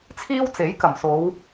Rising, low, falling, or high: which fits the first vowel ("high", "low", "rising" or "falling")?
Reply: high